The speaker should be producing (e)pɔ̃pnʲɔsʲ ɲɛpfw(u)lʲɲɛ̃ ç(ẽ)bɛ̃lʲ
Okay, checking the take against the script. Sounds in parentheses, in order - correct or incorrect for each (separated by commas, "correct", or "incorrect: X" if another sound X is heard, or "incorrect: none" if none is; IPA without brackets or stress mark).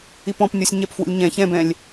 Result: incorrect: i, incorrect: ṵ, incorrect: ɛ̃